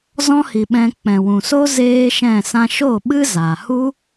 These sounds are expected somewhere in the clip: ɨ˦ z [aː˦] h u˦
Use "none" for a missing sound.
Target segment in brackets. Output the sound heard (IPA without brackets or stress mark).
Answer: aː˨